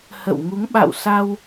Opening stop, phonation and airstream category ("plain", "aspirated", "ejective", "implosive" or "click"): implosive